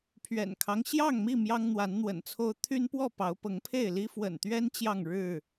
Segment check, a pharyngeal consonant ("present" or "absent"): absent